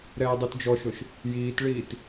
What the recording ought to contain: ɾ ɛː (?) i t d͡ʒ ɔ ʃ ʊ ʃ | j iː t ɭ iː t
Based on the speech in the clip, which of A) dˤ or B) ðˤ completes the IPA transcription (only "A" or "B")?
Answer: A